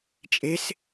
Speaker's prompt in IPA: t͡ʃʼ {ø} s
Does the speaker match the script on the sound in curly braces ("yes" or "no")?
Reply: no